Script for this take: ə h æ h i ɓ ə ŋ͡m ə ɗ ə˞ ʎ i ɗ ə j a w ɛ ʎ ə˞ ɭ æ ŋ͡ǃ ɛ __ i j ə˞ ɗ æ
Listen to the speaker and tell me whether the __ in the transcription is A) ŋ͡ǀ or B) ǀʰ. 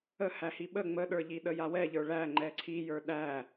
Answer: B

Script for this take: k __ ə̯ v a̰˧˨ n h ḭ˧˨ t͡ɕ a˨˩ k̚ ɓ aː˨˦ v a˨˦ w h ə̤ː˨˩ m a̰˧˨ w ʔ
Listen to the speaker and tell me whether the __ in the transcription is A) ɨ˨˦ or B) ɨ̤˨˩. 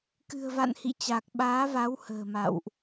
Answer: B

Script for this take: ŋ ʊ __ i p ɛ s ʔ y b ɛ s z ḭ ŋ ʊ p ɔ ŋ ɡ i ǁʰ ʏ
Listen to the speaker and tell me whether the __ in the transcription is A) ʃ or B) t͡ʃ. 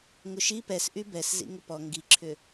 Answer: A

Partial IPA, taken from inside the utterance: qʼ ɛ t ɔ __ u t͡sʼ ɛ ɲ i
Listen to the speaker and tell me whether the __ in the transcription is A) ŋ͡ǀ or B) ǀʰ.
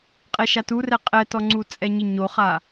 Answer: A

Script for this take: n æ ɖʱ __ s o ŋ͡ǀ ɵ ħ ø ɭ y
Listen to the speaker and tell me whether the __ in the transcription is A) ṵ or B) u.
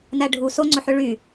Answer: B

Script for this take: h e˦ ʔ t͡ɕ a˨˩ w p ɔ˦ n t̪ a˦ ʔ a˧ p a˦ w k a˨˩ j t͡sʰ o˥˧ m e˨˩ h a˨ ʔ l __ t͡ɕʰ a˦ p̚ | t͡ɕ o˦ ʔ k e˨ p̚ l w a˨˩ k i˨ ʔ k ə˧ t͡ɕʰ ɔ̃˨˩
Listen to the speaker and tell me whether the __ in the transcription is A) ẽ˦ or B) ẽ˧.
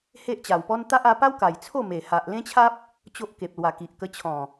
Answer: A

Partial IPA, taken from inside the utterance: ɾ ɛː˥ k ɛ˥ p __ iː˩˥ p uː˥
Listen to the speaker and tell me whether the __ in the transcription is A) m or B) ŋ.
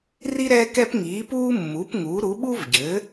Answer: B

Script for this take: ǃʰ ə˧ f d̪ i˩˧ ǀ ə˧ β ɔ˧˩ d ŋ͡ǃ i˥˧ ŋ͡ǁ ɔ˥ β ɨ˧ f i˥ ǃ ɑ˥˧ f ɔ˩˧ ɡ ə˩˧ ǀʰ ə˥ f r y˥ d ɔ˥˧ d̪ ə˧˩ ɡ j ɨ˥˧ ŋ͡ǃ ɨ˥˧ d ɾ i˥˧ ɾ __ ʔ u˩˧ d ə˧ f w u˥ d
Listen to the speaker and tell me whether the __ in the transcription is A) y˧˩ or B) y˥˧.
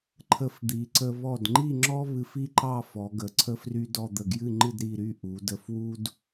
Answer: B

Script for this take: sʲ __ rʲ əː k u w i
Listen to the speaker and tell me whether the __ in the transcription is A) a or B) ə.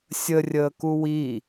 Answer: B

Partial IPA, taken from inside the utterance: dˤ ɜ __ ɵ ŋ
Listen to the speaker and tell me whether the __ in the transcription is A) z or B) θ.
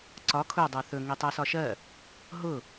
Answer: B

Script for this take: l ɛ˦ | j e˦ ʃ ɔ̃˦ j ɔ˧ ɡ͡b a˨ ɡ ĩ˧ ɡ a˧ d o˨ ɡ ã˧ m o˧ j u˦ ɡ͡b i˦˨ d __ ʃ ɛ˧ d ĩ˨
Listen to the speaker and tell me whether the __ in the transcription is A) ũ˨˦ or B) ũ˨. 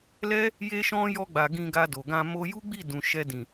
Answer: B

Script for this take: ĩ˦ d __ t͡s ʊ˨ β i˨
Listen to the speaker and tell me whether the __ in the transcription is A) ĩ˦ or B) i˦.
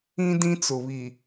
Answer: A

